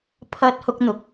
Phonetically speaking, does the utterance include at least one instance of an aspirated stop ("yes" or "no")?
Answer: yes